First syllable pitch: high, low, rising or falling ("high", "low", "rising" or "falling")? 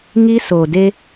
high